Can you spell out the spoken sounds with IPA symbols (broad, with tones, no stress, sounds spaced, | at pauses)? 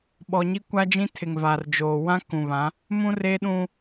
ɓ ɔ˨ ɲ i˦ kʷ a˦ d͡ʒ ĩ˦ tʰ ɪ˨ ŋ v aː˨ r d͡ʒ oː˨ w ã˦ k ũ˨ β ã˨˦ | m ũ˦ r eː˦ ɗ ũ˦